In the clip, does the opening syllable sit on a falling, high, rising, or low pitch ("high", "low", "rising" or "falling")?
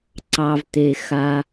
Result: low